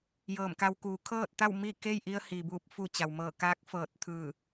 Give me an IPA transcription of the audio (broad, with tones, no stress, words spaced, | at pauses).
jɤː˧˩mka˧w kuː˩˧kʰɤː˥˨t̚t̪a˥˨w mi˥˨ke˥˨jʔi˧ə̯hi˩ buː˧˩p̚fu˧˩ t͡ɕa˩wmɤː˧˩ kaː˧˥k̚fɤː˧˩t̚ t̪ʰɯː˧˩